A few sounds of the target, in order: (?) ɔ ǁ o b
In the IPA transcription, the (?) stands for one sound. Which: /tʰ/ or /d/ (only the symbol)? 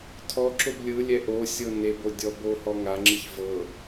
tʰ